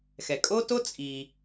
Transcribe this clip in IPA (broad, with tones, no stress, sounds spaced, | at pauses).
x ɛ˩ kʼ o˥ t o˥ t͡sʼ i˩